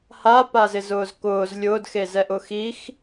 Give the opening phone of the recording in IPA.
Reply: h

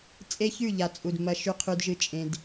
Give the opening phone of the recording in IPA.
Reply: t͡sʼ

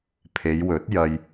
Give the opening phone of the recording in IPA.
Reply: pʰ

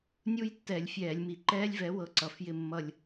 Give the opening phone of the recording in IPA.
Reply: nʲ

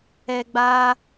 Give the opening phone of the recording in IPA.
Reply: ɛ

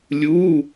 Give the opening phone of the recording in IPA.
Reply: lʲ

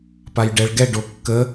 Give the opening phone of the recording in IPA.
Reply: p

